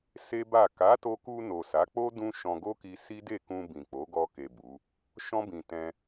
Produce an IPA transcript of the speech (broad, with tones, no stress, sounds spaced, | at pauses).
s e˦ b a˦˨ k a˨˦ t o˧ k u˧ n o˨ s a˨˦ k͡p o˦ d ũ˦ ʃ ɔ̃˧ ɡ o˦ k i˧ s i˦ d e˦˨ k ũ˧ b ĩ˨ k͡p o˨˦ ɡ ɔ˧ k e˨ b u˨˦ | ʃ ɔ̃˦ b ĩ˧ t ɛ̃˧